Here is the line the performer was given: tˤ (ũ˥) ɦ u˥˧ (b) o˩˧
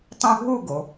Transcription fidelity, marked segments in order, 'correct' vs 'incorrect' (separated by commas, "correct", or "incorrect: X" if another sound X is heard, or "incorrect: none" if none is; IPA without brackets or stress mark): correct, incorrect: ɡ